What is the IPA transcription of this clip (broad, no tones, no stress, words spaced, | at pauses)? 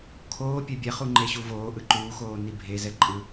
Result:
kʰoː pʲɛbʲɛ χuŋ͡ǃeɕuvoː ʔɯǃuːxoː nibʱezɛ ǃʼɯ